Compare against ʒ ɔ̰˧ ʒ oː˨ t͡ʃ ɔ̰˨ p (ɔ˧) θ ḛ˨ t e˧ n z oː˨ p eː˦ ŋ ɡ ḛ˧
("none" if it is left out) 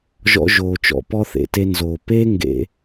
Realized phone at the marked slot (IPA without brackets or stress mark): ɔ˧